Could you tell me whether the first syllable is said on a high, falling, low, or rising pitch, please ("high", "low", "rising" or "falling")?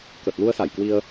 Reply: low